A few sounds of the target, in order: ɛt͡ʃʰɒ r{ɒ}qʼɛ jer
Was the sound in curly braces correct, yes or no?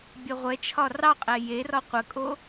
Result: no